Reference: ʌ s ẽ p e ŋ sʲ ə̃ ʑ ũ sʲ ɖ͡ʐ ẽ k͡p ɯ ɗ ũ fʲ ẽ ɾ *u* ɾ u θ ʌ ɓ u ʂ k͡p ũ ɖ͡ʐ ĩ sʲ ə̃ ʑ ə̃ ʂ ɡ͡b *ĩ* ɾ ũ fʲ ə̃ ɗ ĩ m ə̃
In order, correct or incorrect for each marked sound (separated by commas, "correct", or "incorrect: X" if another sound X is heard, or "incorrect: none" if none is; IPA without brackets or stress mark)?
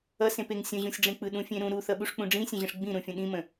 incorrect: ũ, correct